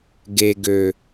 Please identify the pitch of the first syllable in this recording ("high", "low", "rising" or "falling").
low